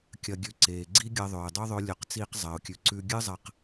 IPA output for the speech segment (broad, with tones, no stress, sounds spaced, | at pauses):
kʲ ɐ˧ ɡʲ ʉ˧ ǀ eː˨ ɡ͡ǀ i˦ ɡʲ ɐ˧ ðˤ ɵː˨ ɪ̯ dˤ o˦ ðˤ ɵ˧ lʲ ɵ˨˦ q t͡s iː˧ q zˤ ɐː˨ ʊ̯ kʲ ʉ˨ ǀ ʉ˧ ɡʲ ɨ˦ zˤ ɐ˧ q